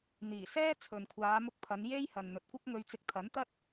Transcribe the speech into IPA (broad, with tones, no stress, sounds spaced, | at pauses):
n̪ iː˨˩ s ɛː˥ t͡sʰ ɵ˨ n kʷʰ aː˨˧ m ʊ˧ k̚ pʰ ɐ˨˧ n j e˧ j h ɐ˨ n n̪ ɵ˨˥ t̚ kʷ ɐ˥ k̚ ŋ ɵ˧ ɥ t͡s ɪ˧ k̚ t̪ʰ ɐ˨˥ n t̪ ɐ˥ t̚